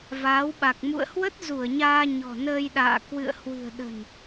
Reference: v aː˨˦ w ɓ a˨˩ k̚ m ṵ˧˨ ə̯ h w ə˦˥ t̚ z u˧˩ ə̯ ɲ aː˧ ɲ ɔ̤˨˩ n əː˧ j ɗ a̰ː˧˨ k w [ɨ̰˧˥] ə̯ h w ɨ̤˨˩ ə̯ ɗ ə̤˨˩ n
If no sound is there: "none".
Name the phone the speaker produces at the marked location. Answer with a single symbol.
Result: ɨ̰˧˨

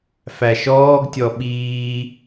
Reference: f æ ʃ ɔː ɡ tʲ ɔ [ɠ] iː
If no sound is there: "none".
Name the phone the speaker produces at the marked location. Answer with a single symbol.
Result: ɓ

